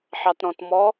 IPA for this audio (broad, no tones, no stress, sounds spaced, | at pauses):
ħ ɑ t ɾ ɔ̃ t m ɔ